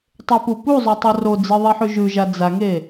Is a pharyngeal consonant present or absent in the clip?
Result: present